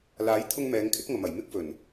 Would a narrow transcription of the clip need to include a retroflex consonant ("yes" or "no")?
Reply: no